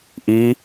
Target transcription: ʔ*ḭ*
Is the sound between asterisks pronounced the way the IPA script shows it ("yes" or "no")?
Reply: no